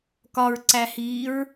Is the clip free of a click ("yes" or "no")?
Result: no